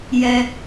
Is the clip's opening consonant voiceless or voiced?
voiced